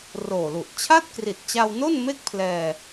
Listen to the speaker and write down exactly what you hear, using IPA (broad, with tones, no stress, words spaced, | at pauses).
roː˨˩lu˨˩ʔ t͡ɕʰa˥˩t̚kri˨˩t̚t͡ɕa˧wno˥˩n me˥˩k̚pʰlɛː˧